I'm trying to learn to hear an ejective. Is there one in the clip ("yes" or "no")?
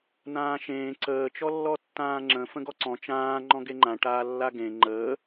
no